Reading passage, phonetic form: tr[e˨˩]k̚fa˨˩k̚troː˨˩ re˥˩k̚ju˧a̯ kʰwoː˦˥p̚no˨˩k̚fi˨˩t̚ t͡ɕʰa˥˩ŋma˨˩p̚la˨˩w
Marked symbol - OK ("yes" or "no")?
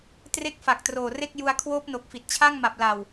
no